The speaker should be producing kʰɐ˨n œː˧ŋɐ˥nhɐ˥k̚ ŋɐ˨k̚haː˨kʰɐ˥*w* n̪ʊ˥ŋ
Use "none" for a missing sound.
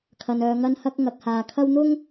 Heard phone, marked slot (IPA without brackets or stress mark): w